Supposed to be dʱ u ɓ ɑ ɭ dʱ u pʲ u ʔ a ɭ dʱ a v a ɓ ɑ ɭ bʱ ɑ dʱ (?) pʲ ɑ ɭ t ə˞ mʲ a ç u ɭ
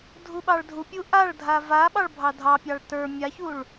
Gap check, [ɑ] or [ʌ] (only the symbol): ɑ